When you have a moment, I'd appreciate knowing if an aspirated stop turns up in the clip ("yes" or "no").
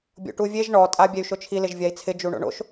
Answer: yes